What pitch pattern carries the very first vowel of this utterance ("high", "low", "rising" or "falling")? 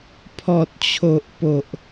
low